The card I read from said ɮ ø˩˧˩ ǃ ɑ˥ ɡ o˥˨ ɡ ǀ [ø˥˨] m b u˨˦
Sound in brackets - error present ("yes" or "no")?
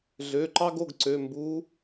yes